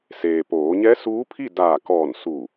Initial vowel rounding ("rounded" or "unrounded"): unrounded